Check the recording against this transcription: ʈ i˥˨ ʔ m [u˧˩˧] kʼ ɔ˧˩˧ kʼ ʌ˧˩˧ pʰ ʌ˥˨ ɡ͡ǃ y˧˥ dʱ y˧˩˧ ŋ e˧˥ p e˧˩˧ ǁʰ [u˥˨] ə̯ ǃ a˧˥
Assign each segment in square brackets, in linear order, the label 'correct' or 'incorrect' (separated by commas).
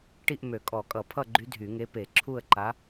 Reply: incorrect, correct